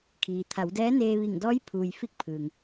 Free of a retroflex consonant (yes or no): yes